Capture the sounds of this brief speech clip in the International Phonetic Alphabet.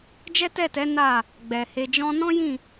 d͡ʒ ɛ˦ t ɛ˦˨ t ɛ˨˦ n a˦˨ | ɡ͡b ɛ˨ h e˨ d͡ʒ ɔ̃˧ n ɔ̃˦ j ĩ˦˨

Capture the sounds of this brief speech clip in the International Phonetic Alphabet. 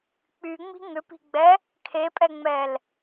k͡p y ŋ͡m i̤ ŋ ʏ p i̤ ɡ͡b ɛ | kʰ e pʼ ɛ ŋ͡m ɛ l

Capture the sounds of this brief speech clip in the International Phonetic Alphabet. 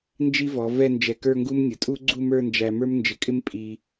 n d͡ʒ i˥ v ɔ˩˧ v ɛ˥˧ n d͡ʒ ɛ˧˩ k ə˞˥˧ ŋ ɡ u˥ m nʲ ʊ˩˧ tʼ u˥ ɡ͡ǀ u˥˧ m ə˞˥˧ n d͡ʒ æ˧ m ə˞˥ m n d͡ʒ ɪ˧˩ kʼ ɪ˥ m pʼ i˧

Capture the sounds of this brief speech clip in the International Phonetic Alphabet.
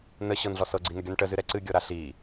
n ə ɕ ɤ n ɮ ɔ s ɤ ɡ͡ǀ i n ə ɡʲ ɔ n ʈ ə z ɨ ɾ ɛ ǀ ɨ ɡʲ ɤ ɾ a ɬ i

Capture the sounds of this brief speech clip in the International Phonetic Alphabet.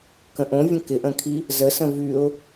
k ə̃ ʔ õ vʲ ə̃ k ɪ ʔ ə̃ kʰ i | z ə s ə̃ v y ʊ̯

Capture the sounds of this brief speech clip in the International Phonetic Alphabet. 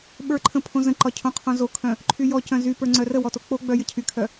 ɓ ə˞ ǃʰ ə̃ pʰ õ z ə̃ ǃ ɒ cʰ õ qʰ õ z o kʰ œ̃ | ǃʰ y j ɔ c œ̃ z y p ə˞ ŋ͡ǀ œ r ə w ɔ t o k͡p o ɡ͡b œ j ə cʰ y kʰ œ

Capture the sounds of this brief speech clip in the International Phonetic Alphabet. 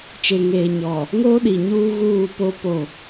t͡ʃ e˨ ŋ eː˨ ɲ ɔ˨ | ŋ oː˦ ɗ i˨ ɲ uː˦ ɣ uː˦˨ p o˦ p o˦˨

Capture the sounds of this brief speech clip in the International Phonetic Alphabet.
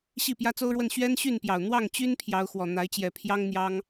ɕ i˥˨ p j ä˦ t͡s o˦ ʊ̯ ɻ w ə˥˨ n ɕ ɥ ɛ˦ n ɕ y˥˨ n p j ɑ˨˩ ʊ̯ n̪ w ɑ˥˨ ŋ t͡ɕ y˦ n pʰ j ɑ˨˦ ʊ̯ x w ɔ˨˩ n̪ a˨˦ ɪ̯ t͡ɕ j ɛ˨˩ pʰ j ɑ˦ ŋ n̪ j ɑ˦ ŋ

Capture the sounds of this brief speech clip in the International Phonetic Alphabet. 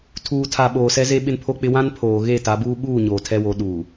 tʰ uː˨ tʰ a˨ ɓ oː˨ s ɛ˦ z e˦ ɓ ɪ˦ n pʰ o˦ k͡p ɪ˦ w ã˦ n pʰ oː˨ ɣ e˦˨ t a˨˦ b uː˦ ɓ uː˦˨ ɲ oː˨ tʰ ɛ˦ w o˨˦ ɗ uː˨

